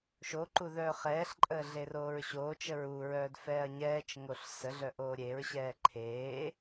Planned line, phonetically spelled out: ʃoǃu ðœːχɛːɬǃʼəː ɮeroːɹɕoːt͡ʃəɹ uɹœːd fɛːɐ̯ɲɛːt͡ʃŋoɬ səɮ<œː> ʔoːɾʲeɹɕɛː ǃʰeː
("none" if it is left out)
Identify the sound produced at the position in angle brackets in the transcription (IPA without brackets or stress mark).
œ